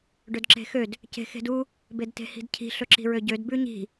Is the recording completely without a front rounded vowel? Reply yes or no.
no